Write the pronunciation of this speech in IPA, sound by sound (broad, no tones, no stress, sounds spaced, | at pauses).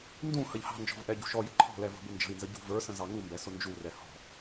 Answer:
n d ũ h ə ʎ h ɑ̤ n d͡ʒ ɔ̤ v ʔ ɛ ɟ ṳ ʃ ɔ j ə ǃʰ ɔ̤ l ɛ v ə̤ b ʊ n d͡ʒ ə̤ i̯ n z ə ɟ ṳ v ə˞ s ə̃ z ɑ ŋ u m b ɛ s ʊ n d͡ʒ u r ɛ h ɔ̤